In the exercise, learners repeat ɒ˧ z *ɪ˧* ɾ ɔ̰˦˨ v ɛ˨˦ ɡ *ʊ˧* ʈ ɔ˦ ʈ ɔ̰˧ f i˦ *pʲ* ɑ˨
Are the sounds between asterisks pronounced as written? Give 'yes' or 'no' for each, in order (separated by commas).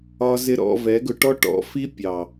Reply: yes, yes, yes